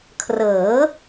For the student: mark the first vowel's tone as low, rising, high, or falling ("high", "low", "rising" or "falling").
rising